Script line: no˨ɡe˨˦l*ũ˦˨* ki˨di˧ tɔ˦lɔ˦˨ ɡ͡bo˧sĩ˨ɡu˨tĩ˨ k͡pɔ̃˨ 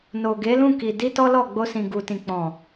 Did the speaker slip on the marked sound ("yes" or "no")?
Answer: no